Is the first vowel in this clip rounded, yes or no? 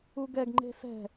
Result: yes